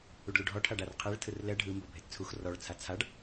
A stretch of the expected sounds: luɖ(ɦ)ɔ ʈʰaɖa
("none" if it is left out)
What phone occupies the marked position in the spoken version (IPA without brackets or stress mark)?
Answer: ɦ